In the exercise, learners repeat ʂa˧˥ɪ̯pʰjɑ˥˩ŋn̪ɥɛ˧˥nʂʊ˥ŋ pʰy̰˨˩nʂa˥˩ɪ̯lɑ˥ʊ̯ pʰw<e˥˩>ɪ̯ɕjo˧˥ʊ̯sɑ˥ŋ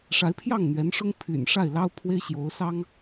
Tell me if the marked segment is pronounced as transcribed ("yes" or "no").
no